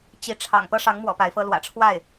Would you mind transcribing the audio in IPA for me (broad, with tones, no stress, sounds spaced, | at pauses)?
t͡ɕ i˧˥ ʈ͡ʂʰ ɑ̰˨˩ ŋ p ɤ˥ ʂ ɑ˧˥ ŋ m w ɔ̰˨˩ p a˧˥ ɪ̯ f ɤ˥ l w ä̰˨˩ ʈ͡ʂʰ w a˥˩ ɪ̯